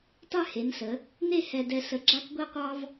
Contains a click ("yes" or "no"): yes